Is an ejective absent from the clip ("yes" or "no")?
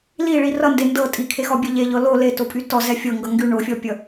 no